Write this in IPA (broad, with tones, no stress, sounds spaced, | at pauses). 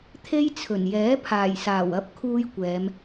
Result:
t̪ʰ e˥ j t͡sʰ ɵ˨˩ n j ɛː˨˥ pʰ aː˨˩ j s aː˨˩ w ɐ˥ p̚ kʰ uː˥ j kʷ ɛː˨˧ m